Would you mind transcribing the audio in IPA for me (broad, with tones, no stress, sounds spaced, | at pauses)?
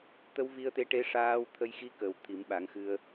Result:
t̪ ə˧˥ w v i˧ ə̯ t̪ e˧˥ ʈ e˧˥ ʂ aː˧ w t̪ʰ ə˧ j x i˧˥ k ə˨˩ w t̪ʰ i˨˩˦ m ɓ a˨˩˦ ŋ x ɨ˧ ə̯